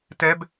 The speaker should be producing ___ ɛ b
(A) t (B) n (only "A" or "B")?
A